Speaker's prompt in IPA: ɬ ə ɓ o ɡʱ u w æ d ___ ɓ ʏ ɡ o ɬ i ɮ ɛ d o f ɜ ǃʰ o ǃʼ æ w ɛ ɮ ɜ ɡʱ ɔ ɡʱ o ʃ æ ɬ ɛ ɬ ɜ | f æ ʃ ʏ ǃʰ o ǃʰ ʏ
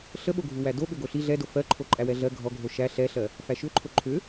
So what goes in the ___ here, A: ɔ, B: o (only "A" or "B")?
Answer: B